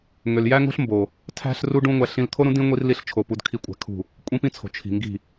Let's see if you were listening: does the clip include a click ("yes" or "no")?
no